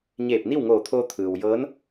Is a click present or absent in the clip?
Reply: absent